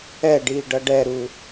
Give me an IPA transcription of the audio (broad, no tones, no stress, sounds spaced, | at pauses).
ɛ ɖ iː ɖ ʌ ɖ ɛ ɾ u